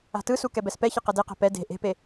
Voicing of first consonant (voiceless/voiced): voiceless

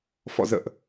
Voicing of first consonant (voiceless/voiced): voiceless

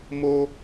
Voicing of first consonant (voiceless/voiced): voiced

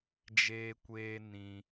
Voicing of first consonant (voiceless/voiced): voiced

